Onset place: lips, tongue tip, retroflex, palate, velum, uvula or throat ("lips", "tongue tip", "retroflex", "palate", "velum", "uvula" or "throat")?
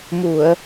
lips